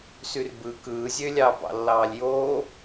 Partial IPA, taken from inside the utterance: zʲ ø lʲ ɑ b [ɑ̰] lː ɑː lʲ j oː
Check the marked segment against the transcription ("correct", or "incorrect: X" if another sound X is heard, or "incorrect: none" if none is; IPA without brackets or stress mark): correct